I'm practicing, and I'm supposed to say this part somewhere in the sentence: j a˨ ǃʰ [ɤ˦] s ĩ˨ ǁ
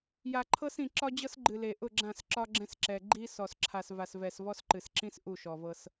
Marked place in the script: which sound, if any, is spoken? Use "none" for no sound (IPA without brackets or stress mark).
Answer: ɤ˦